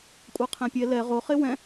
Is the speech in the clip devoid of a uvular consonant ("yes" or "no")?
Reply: no